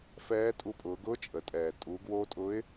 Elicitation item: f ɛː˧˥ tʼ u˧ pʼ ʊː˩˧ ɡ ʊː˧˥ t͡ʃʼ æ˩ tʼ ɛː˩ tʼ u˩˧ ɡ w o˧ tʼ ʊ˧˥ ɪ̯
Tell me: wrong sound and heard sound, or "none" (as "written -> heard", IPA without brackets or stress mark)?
æ˩ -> ə˩